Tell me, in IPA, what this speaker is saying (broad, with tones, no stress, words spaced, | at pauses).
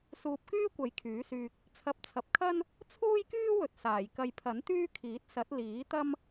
suː˧p̚kyː˥kʷɐ˨˥j kʰyː˨˥syː˧k̚ | t͡sʰɐ˧p̚t͡sʰɐ˨˥p̚ kʰɐ˥n | t͡sʰuː˥jkyː˥wɵ˨t̚ saː˨˩jkɐ˧jpʰɐ˨˥n t̪yː˥kʰiː˨˥t̚sɐ˨˥t̚ liː˨˥t̪ɐ˥m